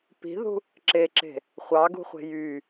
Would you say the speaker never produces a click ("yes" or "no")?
no